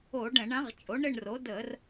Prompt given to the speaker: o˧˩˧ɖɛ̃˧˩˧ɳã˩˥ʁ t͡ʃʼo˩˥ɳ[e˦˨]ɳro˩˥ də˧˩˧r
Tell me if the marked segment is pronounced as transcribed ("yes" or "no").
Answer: no